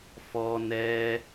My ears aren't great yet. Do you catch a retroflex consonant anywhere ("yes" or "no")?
no